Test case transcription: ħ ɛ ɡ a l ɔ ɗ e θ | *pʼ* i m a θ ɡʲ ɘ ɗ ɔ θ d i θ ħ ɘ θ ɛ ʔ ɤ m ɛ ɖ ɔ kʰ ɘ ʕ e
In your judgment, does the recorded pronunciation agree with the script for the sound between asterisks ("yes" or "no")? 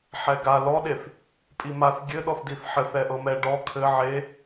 yes